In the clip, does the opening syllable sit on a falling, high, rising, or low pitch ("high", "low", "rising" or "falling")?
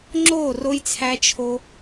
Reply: falling